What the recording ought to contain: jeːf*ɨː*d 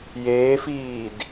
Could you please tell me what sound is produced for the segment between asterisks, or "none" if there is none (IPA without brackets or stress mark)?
iː